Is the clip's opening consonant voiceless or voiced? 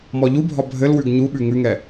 voiced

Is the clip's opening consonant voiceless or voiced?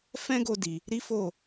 voiceless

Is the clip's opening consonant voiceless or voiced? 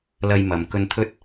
voiced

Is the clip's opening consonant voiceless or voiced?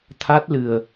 voiceless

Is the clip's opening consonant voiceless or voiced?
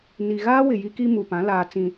voiced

